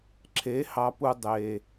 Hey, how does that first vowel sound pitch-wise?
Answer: rising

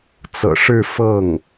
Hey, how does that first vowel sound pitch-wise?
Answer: low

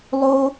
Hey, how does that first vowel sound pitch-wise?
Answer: high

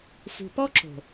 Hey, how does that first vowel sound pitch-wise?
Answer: low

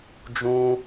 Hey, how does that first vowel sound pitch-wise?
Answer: high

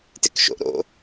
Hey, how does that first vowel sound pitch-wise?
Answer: low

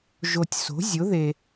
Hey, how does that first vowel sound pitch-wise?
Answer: low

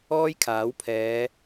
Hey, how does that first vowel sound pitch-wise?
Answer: high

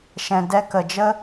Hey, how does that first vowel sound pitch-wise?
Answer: low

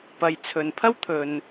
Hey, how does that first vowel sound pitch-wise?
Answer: low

